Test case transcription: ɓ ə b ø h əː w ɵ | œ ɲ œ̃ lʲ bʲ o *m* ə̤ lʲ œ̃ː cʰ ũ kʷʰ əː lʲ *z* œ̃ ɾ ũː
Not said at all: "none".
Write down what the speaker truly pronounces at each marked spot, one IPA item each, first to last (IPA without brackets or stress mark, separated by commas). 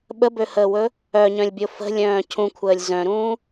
f, z